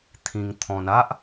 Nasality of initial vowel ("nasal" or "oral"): nasal